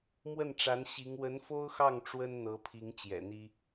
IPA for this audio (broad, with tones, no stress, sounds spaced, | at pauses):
m w ə˥˩ n ʈ͡ʂ a˧˥ n ɕ i˧˥ ŋ w ə˧˥ n f o˥ ʊ̯ x ɑ˥˩ ŋ ʈ͡ʂ w ə˥ n n̪ ɤ˧˥ pʰ i˧˥ ŋ t͡ɕ j ɛ̰˨˩ n̪ i˥